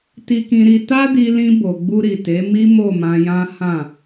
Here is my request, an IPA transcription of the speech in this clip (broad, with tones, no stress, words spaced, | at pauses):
ti˧kĩ˧ɾi˧ ta˦di˧lĩ˧ bo˨ɡ͡bu˧ ɾi˨te˨˦mi˦ mo˦˨mã˧jã˦ hã˦˨